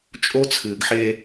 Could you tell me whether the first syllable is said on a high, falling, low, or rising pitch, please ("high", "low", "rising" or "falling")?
high